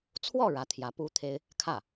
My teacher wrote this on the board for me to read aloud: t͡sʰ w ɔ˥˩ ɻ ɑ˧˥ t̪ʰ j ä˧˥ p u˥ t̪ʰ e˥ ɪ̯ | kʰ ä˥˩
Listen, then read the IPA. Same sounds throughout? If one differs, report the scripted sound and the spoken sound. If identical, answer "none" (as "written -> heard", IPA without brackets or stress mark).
ɑ˧˥ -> ä˧˥